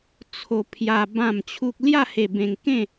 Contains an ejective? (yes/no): no